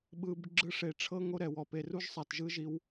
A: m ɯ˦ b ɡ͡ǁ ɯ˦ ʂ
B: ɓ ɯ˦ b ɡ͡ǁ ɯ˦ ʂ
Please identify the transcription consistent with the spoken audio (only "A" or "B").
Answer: B